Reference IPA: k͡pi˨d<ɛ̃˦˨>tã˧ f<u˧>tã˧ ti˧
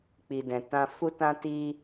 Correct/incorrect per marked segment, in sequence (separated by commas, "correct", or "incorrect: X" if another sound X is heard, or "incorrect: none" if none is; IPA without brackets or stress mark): incorrect: ɛ̃˨, correct